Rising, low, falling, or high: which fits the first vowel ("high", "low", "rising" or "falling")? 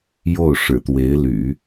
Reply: falling